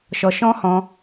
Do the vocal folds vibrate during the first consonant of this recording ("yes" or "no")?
no